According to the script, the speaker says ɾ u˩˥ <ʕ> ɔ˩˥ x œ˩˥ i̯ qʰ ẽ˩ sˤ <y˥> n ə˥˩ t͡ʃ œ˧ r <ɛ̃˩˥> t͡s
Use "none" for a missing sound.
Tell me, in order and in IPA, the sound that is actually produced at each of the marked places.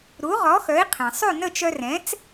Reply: ʁ, y˥˩, ɛ̃˩˥

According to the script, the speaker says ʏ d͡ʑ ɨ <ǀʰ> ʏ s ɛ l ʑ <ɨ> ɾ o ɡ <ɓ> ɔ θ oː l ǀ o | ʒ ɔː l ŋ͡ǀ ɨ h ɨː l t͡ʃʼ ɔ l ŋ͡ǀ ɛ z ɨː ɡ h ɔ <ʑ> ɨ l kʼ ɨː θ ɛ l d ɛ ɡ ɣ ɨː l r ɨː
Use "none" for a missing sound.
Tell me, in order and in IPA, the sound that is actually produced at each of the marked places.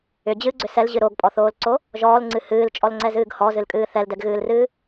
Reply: ɡ͡ǀ, ɨ, pʼ, z

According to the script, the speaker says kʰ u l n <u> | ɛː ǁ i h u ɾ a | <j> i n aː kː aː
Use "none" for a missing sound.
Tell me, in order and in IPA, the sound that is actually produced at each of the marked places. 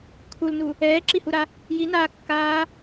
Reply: u, j

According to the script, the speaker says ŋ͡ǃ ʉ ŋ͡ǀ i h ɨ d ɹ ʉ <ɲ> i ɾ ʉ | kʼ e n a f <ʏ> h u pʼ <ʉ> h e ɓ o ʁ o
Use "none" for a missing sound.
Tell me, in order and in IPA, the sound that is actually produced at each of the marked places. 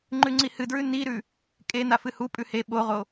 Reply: n, ɨ, ʉ

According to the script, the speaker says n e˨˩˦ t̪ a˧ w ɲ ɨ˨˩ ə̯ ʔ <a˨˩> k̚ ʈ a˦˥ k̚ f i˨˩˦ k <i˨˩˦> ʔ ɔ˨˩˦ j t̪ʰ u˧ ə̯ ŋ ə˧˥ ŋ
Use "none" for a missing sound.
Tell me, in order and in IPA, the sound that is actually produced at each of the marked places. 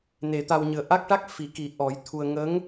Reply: a˦˥, i˨˩˦

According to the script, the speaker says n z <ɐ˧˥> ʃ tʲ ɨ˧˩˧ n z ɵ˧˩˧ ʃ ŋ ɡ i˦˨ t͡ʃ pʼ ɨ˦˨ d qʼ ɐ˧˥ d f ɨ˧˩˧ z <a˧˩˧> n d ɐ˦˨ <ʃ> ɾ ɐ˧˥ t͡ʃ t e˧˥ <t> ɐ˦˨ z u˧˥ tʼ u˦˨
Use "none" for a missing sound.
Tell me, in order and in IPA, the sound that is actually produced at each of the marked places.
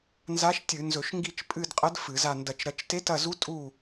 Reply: a˧˥, a˦˨, t͡ʃ, t

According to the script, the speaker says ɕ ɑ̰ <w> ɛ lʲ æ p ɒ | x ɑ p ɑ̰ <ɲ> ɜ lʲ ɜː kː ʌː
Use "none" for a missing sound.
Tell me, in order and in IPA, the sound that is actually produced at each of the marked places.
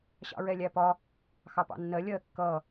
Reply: ɹ, nː

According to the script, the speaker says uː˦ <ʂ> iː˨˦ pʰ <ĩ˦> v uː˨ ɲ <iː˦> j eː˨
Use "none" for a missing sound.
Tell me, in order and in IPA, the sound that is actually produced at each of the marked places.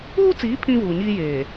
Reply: t͡s, ĩ˦, iː˦

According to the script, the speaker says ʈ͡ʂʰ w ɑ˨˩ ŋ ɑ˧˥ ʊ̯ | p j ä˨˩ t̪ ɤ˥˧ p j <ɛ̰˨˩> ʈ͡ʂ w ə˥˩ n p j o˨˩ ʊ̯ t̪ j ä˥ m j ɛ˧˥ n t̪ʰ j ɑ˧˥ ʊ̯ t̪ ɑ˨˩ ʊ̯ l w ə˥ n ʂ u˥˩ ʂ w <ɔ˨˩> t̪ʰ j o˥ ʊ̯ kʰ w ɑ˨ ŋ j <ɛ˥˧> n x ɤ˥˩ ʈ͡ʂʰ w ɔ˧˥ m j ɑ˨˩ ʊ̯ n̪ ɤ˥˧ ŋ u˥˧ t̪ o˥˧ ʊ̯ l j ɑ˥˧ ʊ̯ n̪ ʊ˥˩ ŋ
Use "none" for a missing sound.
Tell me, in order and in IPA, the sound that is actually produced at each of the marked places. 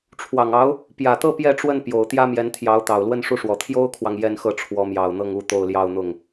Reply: ɛ˥˧, ɔ˨˩, ɛ˥˧

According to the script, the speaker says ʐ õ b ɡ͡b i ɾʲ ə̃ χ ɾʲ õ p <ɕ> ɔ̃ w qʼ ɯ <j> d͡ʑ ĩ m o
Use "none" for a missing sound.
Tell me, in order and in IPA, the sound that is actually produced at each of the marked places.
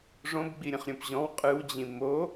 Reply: ʑ, w

